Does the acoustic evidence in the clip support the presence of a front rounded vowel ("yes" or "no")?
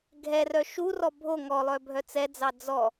yes